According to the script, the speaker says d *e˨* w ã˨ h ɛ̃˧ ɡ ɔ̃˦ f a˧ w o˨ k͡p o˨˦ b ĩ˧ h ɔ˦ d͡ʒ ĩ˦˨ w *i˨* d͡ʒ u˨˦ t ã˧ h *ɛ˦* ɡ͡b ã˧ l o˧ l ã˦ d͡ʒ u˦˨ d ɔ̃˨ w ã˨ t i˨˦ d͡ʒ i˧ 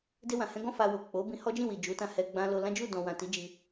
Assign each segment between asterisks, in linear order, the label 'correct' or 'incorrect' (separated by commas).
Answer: incorrect, correct, incorrect